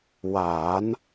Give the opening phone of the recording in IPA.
w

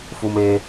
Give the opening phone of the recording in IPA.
f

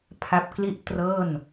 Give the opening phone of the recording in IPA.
pʰ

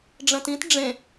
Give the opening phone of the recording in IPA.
ɖ͡ʐ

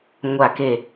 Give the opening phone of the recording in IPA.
ŋʷ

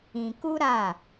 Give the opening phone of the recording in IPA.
ĩ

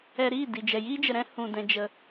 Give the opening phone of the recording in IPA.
ɛ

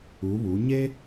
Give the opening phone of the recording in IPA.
u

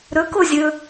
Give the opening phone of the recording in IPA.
ɾ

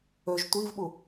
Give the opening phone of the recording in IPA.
ɵ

